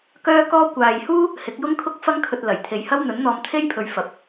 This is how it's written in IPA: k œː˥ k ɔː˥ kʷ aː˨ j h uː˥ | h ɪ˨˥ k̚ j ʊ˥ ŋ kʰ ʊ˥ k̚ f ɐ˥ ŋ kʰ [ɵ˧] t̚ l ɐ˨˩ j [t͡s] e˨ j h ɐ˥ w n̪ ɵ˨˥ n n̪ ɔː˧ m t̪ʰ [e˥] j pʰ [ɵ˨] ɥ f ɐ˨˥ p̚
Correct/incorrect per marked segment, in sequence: correct, incorrect, correct, correct

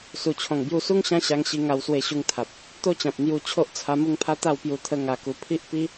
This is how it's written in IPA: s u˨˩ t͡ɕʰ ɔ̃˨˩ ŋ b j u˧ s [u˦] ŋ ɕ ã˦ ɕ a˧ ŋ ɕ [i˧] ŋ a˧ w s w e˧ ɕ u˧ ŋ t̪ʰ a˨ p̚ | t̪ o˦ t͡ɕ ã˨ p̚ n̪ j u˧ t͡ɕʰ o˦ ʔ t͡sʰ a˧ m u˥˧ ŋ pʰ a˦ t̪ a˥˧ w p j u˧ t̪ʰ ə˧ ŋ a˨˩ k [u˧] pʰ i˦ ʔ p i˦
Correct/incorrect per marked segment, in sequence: correct, correct, incorrect

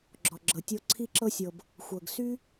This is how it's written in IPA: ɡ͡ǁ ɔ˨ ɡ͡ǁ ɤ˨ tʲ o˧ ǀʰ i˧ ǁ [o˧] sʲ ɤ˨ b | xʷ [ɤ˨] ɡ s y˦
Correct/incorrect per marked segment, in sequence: incorrect, correct

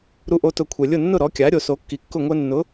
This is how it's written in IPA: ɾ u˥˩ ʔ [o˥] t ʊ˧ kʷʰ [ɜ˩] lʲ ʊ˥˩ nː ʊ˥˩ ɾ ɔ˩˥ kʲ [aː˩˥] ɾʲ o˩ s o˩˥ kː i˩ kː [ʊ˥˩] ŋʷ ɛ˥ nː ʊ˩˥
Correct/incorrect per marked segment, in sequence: correct, incorrect, incorrect, correct

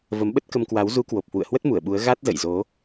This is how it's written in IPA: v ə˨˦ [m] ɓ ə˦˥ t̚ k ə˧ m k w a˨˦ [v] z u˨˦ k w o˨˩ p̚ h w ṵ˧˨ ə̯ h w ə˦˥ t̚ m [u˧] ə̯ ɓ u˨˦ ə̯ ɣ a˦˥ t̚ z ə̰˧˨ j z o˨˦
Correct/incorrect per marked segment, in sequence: correct, incorrect, incorrect

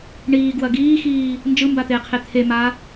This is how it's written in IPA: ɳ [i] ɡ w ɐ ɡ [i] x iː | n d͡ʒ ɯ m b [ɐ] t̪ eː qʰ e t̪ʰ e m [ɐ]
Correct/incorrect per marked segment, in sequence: incorrect, incorrect, incorrect, incorrect

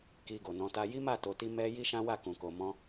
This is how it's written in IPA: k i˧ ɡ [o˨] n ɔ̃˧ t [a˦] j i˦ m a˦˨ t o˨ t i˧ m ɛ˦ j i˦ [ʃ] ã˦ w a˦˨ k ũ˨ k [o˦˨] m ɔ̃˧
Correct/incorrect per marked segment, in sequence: correct, correct, correct, incorrect

